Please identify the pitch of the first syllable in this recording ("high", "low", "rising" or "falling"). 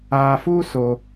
low